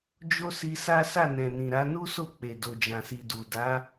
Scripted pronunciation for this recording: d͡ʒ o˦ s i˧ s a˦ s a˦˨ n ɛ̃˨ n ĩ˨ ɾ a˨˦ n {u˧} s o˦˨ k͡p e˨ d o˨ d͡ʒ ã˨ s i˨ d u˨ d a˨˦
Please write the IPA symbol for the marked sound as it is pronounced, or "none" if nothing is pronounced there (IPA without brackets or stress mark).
u˦